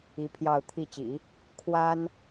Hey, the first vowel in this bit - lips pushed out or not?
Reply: no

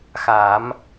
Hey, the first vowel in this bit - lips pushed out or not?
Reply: no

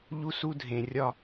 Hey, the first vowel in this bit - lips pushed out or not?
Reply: yes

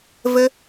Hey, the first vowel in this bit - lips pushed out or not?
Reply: no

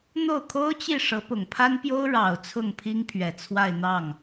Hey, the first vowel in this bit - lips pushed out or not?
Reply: yes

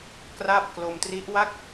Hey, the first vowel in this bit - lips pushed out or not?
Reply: no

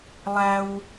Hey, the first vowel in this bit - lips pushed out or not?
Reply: no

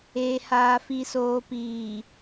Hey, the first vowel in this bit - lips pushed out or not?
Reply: no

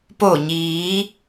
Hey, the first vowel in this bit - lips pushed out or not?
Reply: yes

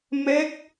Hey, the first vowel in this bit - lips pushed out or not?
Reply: no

